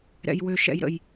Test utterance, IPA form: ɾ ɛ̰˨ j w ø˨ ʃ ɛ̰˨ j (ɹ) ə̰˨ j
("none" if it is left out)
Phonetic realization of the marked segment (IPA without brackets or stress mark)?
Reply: ɾ